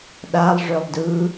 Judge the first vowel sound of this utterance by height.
low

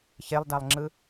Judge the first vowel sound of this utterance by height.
mid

